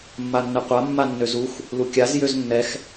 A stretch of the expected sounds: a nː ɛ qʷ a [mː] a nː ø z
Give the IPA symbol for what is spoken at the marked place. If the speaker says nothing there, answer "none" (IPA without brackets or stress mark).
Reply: mː